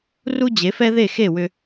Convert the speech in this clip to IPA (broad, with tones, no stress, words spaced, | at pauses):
ru˥ d͡ʑe˩˥fɛ˥ ðe˥˩ xe˥˩wʏ˧